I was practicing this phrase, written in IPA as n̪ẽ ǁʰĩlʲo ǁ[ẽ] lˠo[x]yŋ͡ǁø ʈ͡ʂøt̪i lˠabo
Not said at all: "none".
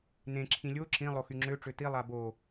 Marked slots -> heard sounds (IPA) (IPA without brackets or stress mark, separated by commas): ĩ, x